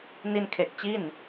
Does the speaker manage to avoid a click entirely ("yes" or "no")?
yes